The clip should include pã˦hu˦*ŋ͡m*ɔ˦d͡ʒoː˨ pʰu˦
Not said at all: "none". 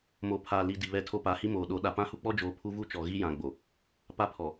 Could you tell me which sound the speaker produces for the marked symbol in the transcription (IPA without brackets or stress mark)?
k͡p